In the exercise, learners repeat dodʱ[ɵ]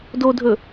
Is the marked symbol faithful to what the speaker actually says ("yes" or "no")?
yes